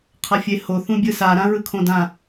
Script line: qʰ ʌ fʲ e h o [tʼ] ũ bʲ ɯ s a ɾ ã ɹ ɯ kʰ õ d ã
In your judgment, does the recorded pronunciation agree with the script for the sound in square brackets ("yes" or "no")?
no